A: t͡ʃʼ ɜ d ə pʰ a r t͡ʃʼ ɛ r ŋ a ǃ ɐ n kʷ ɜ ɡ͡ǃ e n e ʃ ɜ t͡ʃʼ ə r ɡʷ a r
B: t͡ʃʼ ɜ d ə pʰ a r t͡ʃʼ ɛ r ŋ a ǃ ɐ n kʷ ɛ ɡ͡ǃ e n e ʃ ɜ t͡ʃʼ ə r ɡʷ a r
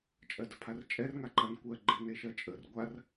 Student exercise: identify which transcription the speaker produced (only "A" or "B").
A